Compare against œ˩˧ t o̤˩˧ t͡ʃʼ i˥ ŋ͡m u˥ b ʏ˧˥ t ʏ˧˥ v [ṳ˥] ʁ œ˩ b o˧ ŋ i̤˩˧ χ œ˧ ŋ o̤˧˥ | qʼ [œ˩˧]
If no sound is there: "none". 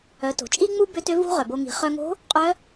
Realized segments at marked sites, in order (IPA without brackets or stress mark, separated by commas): ṳ˥, œ˧˥